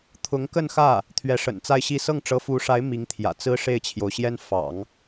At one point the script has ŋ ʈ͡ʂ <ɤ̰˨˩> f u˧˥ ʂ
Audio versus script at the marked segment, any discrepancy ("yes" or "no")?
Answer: yes